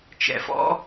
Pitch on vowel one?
low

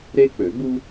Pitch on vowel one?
high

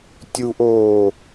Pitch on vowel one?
high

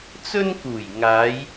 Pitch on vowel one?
high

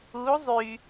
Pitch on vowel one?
rising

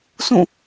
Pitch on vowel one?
falling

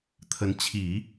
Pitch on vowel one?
rising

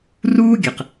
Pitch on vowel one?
high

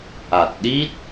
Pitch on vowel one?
low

